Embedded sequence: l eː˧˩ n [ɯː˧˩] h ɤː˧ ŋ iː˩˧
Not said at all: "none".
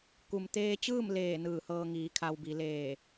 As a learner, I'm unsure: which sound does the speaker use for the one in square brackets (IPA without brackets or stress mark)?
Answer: ɯː˧˩